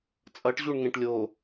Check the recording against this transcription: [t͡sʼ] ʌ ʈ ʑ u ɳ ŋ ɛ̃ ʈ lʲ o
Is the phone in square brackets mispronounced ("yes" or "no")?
no